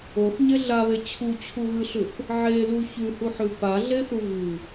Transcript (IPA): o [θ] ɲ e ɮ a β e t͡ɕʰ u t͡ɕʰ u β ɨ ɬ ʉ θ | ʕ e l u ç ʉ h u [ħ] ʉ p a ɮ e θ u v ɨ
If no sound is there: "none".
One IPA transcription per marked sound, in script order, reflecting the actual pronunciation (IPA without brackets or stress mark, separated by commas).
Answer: θ, ħ